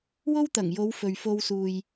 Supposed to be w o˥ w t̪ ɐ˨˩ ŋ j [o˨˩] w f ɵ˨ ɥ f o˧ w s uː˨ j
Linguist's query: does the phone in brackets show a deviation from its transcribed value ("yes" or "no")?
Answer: yes